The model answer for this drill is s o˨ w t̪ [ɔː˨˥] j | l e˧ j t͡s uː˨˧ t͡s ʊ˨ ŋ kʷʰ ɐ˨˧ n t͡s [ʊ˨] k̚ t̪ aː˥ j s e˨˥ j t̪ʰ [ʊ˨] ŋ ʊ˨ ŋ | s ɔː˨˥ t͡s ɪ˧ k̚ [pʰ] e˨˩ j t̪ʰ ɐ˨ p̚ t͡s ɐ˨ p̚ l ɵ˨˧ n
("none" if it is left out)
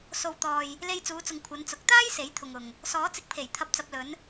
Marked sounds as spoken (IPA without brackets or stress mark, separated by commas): ɔː˨, ʊ˨, ʊ˨, pʰ